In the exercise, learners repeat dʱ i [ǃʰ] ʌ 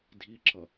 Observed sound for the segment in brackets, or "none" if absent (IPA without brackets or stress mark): ǁʰ